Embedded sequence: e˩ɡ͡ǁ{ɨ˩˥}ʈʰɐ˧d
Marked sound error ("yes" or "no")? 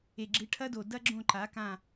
no